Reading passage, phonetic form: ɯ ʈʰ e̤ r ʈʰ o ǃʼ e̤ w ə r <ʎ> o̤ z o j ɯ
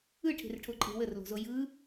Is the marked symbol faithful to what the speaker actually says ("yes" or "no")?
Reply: no